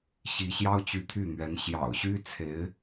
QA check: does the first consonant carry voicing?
no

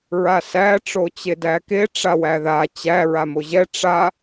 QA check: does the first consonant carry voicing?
yes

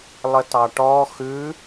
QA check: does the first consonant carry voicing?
yes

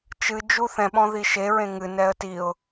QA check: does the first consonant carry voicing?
no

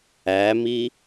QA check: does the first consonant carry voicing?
yes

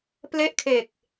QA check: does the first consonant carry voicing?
no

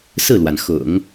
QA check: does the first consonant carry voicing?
no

